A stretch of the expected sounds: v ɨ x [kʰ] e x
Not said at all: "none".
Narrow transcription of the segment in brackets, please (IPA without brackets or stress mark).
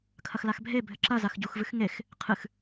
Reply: ŋ